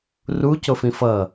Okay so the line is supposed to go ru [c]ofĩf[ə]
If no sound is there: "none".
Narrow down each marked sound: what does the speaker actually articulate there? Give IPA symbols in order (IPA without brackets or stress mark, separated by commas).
c, ʌ